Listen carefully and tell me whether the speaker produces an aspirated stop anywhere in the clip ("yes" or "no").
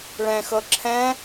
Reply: yes